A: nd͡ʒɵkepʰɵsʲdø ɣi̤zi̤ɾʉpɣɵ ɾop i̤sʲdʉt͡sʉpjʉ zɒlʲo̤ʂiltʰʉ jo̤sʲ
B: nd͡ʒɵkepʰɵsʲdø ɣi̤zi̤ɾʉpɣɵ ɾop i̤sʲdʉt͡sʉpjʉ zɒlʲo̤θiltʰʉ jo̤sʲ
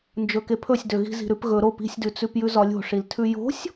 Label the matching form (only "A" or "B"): A